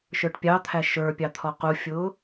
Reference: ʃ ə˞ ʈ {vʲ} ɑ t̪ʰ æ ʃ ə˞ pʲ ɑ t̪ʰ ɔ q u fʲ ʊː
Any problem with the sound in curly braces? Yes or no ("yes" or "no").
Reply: yes